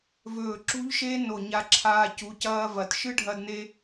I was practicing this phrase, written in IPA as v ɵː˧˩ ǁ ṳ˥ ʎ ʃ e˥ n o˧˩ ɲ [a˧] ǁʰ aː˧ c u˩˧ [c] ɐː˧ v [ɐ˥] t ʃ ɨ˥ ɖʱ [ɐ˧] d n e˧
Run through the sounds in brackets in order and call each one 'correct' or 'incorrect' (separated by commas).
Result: correct, correct, incorrect, correct